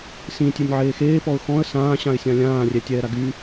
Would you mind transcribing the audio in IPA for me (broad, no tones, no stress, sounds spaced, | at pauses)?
s ĩ tʲ e nʲ ʕ eː x eː p ɔ ʊ̯ x ɔ̃ ə̯ s ãː ɕ ã ɪ̯ sʲ ã lʲ ãː rʲ ɛ tʲ ɛː ɾ a ɡ y